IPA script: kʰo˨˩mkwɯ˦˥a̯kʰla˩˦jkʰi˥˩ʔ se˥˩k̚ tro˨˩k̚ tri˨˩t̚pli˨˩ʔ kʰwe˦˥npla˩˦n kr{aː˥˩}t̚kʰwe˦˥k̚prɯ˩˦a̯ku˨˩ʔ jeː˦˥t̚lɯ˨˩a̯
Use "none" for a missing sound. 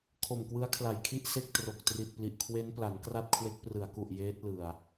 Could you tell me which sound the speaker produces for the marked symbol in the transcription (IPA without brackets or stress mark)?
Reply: a˥˩